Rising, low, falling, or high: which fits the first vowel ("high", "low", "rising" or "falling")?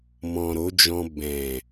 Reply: low